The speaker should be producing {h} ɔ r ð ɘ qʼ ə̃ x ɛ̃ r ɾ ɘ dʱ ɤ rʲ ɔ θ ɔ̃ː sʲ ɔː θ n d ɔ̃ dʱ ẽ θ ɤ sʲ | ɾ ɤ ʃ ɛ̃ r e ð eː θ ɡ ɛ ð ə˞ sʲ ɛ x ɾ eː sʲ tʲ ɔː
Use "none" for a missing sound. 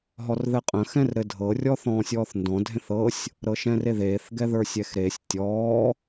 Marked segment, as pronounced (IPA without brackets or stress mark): ɦ